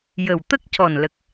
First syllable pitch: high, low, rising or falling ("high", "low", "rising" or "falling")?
low